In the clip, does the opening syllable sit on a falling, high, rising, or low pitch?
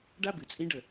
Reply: high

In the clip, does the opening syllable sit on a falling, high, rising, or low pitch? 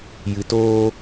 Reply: low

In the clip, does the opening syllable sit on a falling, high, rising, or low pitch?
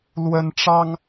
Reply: high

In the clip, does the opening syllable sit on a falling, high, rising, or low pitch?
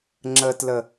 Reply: low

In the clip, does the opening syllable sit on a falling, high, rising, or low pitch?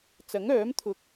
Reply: rising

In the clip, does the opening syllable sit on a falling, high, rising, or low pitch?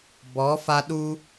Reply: rising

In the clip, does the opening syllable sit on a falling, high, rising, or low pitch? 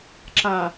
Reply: low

